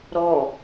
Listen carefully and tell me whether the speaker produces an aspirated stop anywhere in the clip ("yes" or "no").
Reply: no